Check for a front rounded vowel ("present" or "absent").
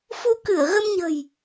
absent